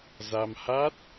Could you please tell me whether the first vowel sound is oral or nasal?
oral